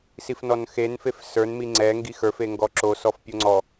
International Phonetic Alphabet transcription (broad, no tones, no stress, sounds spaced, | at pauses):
s i f n ɔ n x e n f e f s ə˞ n m i ŋ͡ǀ ɛ ŋ ɡ i x ə˞ f e ŋ ɡ ɔ ǁ o s ɔ f pʲ o ŋ͡ǀ ɔ